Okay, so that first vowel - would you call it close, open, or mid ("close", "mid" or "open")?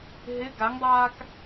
close